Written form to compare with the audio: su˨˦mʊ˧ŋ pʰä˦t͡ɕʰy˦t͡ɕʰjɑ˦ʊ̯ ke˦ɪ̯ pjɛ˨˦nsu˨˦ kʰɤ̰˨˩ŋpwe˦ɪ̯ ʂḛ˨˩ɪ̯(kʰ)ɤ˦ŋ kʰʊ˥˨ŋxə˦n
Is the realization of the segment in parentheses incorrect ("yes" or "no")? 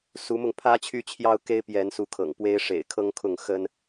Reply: no